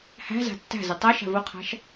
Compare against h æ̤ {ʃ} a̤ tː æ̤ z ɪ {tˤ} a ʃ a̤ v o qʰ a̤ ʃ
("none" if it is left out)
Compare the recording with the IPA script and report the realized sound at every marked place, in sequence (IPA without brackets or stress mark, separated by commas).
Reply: z, tˤ